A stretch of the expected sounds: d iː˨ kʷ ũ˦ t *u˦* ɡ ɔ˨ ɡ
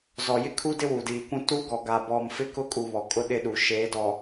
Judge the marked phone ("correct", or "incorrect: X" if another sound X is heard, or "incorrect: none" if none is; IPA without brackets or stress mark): correct